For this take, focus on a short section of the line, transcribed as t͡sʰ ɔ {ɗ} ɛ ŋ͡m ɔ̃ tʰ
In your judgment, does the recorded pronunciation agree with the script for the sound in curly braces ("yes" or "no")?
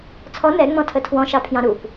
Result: no